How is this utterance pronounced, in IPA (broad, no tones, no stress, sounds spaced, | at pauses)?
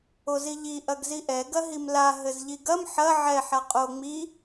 o z i ʎ i ʔ ɐ ɡ z i ʔ ɛ ɡ ɐ ɦ i m l a ɦ ɘ z ʎ i ɡ ɐ m ħ ɐ ʕ ɛ ħ a qʼ o ŋ͡m i